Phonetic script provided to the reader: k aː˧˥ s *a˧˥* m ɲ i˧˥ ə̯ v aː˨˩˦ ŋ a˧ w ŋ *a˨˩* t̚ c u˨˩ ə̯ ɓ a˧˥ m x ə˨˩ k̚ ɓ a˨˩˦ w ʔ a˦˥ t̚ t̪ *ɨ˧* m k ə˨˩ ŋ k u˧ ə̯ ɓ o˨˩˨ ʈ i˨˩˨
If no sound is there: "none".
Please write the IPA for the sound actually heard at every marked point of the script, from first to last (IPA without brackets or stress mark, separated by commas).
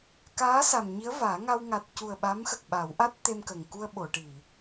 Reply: a˨˩, a˨˩, e˧